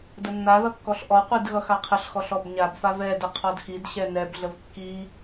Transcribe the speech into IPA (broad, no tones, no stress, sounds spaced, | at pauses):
d ə nː a ð ʌ kː ɔ ɬ ʔ ɔ qʷ i d ɣ ʌ x a qʰ ə ɬ x ɔ ɬ ɔ b ɲ a b f a v ɛ d ə qʰ ɔ d x i d ɕ ɛ n ɛ b ɮ ə v kː i